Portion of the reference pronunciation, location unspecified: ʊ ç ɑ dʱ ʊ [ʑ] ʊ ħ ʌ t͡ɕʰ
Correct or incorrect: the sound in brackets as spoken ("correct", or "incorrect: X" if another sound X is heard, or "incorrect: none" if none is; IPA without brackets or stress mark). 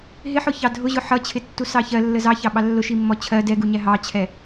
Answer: correct